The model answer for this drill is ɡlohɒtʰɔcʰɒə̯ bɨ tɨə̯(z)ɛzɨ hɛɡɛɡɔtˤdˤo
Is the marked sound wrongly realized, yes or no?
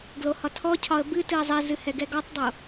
yes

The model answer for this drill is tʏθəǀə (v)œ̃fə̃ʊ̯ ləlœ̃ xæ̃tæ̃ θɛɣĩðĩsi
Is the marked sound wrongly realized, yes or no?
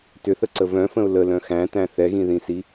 no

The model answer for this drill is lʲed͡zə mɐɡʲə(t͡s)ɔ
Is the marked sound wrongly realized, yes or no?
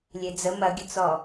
no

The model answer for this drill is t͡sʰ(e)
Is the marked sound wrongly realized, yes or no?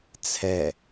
yes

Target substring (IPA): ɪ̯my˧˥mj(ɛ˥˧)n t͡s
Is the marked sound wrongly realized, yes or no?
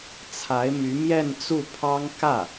no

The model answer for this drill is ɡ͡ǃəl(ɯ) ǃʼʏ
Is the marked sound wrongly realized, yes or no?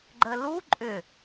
yes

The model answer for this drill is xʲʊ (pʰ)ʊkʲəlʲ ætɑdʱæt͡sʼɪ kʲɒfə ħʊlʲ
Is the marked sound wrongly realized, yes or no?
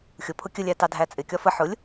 no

